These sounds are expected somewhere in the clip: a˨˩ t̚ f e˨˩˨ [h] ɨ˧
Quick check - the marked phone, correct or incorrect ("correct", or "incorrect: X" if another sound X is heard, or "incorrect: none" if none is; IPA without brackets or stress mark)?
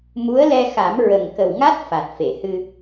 correct